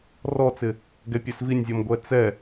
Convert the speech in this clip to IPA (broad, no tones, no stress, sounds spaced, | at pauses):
r ɔ t͡s ɪ | ɡ ɛ pʲ e s v i nʲ zʲ ɔ m ɡʷ ɛ t͡s ɛ